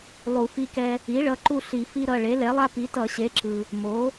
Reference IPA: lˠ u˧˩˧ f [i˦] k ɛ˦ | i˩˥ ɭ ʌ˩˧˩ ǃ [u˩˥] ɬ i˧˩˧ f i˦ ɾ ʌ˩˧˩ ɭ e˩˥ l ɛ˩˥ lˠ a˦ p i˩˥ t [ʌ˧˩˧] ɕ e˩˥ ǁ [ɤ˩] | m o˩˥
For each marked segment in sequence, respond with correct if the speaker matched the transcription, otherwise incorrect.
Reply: correct, incorrect, correct, incorrect

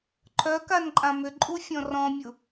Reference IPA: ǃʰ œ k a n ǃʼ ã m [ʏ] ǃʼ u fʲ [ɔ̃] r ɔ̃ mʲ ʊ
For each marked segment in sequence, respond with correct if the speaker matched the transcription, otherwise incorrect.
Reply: correct, correct

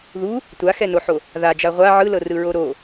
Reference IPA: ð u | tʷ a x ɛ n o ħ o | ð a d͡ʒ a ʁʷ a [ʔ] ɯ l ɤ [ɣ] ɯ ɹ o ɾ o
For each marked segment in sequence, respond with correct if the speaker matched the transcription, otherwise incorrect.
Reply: incorrect, incorrect

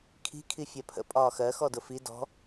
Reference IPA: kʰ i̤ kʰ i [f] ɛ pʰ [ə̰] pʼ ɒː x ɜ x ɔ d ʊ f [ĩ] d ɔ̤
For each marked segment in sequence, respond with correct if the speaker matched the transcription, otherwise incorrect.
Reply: incorrect, correct, incorrect

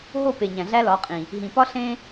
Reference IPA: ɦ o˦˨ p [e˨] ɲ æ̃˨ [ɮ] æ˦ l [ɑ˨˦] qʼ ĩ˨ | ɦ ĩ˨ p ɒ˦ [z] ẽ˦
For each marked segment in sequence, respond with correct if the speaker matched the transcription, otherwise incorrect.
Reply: correct, correct, incorrect, incorrect

